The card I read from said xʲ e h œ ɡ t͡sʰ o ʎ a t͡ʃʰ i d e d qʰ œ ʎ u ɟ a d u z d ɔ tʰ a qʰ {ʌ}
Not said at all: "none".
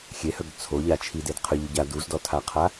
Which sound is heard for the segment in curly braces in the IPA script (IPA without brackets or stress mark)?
a